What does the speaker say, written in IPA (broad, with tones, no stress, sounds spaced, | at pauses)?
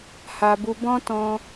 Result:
h a˧ b u˧ b ɔ̃˦ t ɔ̃˧